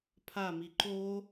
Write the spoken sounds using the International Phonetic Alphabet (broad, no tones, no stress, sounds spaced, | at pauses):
pʰ a m i ǃ o